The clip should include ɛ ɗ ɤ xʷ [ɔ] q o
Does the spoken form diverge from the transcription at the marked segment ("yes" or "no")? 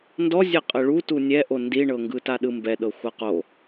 yes